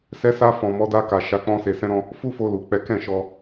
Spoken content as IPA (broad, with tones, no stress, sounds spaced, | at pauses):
s ɛ˧ s a˧ f ɔ̃˨ m ɔ˨˦ d a˧ k a˨ ʃ a˧ k͡p ɔ̃˦ s e˧ s ɛ̃˦ ɾ ɔ̃˦ | f u˦ f o˧ l u˨ k͡p ɛ˨˦ k ɛ̃˦˨ ʃ ɔ˧